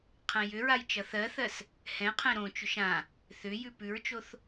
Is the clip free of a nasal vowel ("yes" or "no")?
no